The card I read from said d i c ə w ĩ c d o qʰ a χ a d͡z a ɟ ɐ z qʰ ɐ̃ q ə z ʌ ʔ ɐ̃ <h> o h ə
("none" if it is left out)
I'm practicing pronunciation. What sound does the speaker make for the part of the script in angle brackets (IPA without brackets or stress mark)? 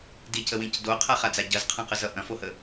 f